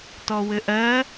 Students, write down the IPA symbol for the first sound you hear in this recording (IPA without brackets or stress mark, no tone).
t